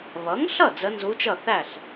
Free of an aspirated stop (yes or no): yes